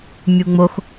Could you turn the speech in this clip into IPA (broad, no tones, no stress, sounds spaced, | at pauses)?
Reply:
mʲ u ŋ͡m o x